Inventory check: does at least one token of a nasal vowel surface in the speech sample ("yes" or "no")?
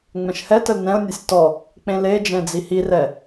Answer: yes